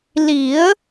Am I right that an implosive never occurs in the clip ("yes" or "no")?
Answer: yes